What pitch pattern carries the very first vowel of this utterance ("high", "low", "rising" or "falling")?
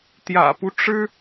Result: low